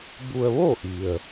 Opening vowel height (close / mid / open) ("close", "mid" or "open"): close